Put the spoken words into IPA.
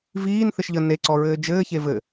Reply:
v iː n θ ɘ ʃ ʎ ə n e ǀ ɔ ɹ ɘː d͡ʒ ɘː ç e v ɘ

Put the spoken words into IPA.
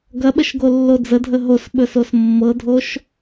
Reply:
ɡ ɐ ɓ ə ʃ ɡ o lː o d͡z ə dʱ ə ɦ o s ɓ ɵ s o s mː ɤ dʱ o ʃ

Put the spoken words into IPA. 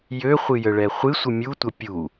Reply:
j ø χʷ ɨ j ə ɭ ɛ χʷ ɨ sʷ ɨ mʲ u tʷ ə pʲ u

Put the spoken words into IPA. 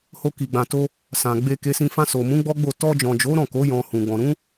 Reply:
h o˧ k i˨ ɡ͡b ã˨ t o˧ | s ã˨ ɡ͡b e˧ k e˧ s ĩ˧ f ã˧ s o˨ m ũ˨˦ ɡ͡b ɔ˦ ɡ͡b o˦˨ t ɔ˧ d͡ʒ ɔ̃˨ d͡ʒ o˨˦ ɾ ɔ̃˦˨ k o˨˦ j ɔ̃˧ h ũ˨ ɡ͡b ɔ̃˨ ɾ ũ˨˦

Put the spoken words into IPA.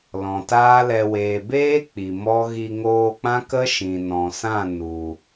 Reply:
l ɔ̃˨ t aː˦ l ɛ˧ w eː˨ b eː˦ k͡p i˨ m ɔ˦ ɣ i˧ ŋ oː˧ k͡p ã˦ k ə˦ ʃ ĩ˨ n ɔ̃˨ s ã˦˨ n u˨

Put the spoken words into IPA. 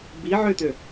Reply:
b i ʕ ø t̪ ø

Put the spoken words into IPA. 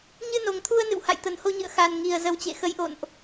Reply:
ɲ ɨ˧ n o˨˩ ŋ t̪ʰ u˧ ə̯ n ɨ̰˧˨ w h a̰˧˨ j t̪ ə˨˩ n h o˧ ɲ ɨ̰˧˨ ə̯ x a˨˩ n ŋ i˨˩ ə̯ z ə˨˦ w t͡ɕ ḛ˧˨ x ə˨˦ j ʔ o̰˧˨ n ʔ

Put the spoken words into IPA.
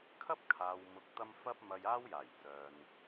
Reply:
kʰ ɐ˥ p̚ kʰ aː˨ w m ʊ˨ k̚ t̪ ɐ˧ m f ɐ˥ p̚ m ɐ˧ j aː˥ w j aː˨˩ j t͡s œː˨ n

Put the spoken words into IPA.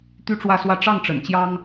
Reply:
t̪ y˥ ʈ͡ʂ w ä˥˧ s w ä˥˧ ʈ͡ʂ ɑ˥˩ ŋ ʈ͡ʂ ə̰˨˩ n t͡ɕ j ɑ˥ ŋ

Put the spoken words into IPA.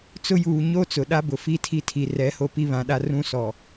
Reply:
t͡s ʊ˦ j uː˨ ɲ o˦ t͡s ʊ˨ ɗ a˦ b ʊ˨ f i˦ tʰ i˦˨ tʰ i˨ r ɛ˨˦ h o˦ p i˦ β ã˨˦ ɗ a˦ r ũ˦ s ɔ˨

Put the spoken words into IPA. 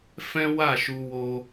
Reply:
f ɛ̃˦ w a˦˨ ʃ u˧ w o˧

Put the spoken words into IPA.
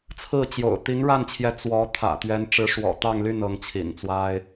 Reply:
t͡sʰ ɹ̩˥˩ t͡ɕ j o̰˨˩ ʊ̯ t̪ i˧˥ ŋ ɻ a˥˩ n t͡ɕʰ j ɛ˧˥ t͡s w ɔ˧˥ t̪ʰ ä̰˨˩ t̪ ɥ ɛ˧˥ n ʈ͡ʂ ɻ̩˧˥ ʂ w ɔ̰˨˩ t̪ ɑ˥˧ ŋ l y˥˩ n ɤ˧˥ ŋ t͡ɕʰ ḭ˨˩ n t͡s w a˥ ɪ̯

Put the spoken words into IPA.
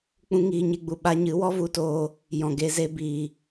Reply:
k͡p ũ˧ ŋ iː˨ ɲ e˧ ɡ͡b u˨ ɓ a˧ ɲ ɨ˨˦ w ɔ˦ v u˧ t oː˧ | j ɔ̃˨ ɡ e˧ z e˦ b iː˨

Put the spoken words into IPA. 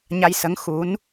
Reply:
ɲ a˧ j s ə˧˥ ŋ x u˧˥ n

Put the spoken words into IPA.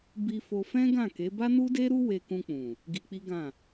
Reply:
b i˧ f o˧ f ɛ̃˦ ɡ ã˦˨ k e˨˦ b a˦ n u˦ d e˦ ɾ u˦ w e˧ k ũ˧ k͡p ũ˨ | ɡ i˧ k͡p i˦ ɡ ã˦˨

